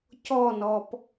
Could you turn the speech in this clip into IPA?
c ɔ n ɔ p

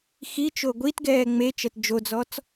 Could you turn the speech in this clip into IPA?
x i t͡ʃ o ɡʷ i t ɡ ɛː ŋ͡m e t͡ʃ ɜ t d͡ʒ o d͡z ɔ t͡s

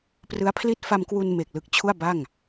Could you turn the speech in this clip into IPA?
p r ɯ˦˥ a̯ pʰ l i˥˩ t̚ f a˧ m k w u˧ n m e˨˩ k̚ l ɯ˨˩ k̚ t͡ɕʰ u˥˩ a̯ b a˥˩ ŋ

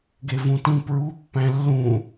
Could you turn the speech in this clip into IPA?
ɡ e v ũ t ĩ p ɹ u pː æ̃ lː ũ

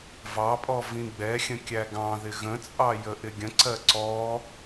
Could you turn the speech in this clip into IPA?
v ɑ pʼ ɔ v ĩ ɡ͡b ɛ xʲ ə̃ kʲ æ ɡ ɑ̃ ð ɪ ɣ ə̃ t͡sʼ ɑ j ə ʔ ɪ ɡʲ ə̃ ǀ ɜ ǀ ɔ

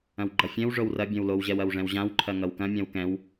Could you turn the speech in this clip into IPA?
ɐ̃ w ɡ͡ǃ ʌ fʲ ɛ̃ w ʐ o w r ɐ bʲ ɛ̃ w l o w ʑ ɛ w ɐ w ʐ ɛ̃ w ʑ ã w ǃʰ ɐ ŋ ʌ w k ɐ̃ mʲ ã w k ɛ̃ w

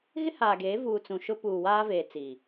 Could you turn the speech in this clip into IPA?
ɣ ɪ˦ h aː˨ ɡ eː˨˦ v uː˨ t͡s ũ˨ ʃ ʊ˦ p uː˨ w aː˦ v eː˨ t͡s i˨

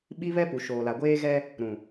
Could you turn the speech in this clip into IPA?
ɓ i˦ β ɛ˦ p u˨ ʃ oː˨ l a˨ ɡʷ eː˦ ɣ ɛ˦ | ɾ ũ˨

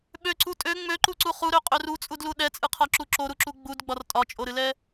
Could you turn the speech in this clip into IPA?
ɓ ø ǀ u tʼ ø ŋ͡m ø ǃ u ǀ u χ u ɾ ø qʼ ø r u t͡sʼ u d l u ɗ ɛ t͡sʼ ɨ qʰ ɒ ǁ u ǁ o ɾ u ǁ u ɡ͡b u d ɡ͡b ɒ r tʼ ɒ t͡ʃʼ o ɾ ɨ l ɛ

